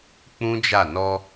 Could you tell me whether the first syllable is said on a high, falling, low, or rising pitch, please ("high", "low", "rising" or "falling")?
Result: high